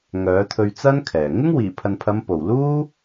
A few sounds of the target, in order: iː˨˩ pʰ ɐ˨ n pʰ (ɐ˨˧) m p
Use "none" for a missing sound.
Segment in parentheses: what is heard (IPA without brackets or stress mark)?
ɐ˨˧